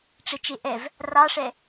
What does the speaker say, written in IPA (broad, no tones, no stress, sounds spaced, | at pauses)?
ʈ͡ʂ e t͡ʃ e ʔ ɛ v | r ɑ ʂ ɛ